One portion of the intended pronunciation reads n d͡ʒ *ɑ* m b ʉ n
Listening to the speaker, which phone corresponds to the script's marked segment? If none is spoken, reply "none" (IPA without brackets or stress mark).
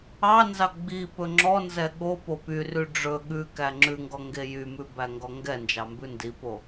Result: ɑ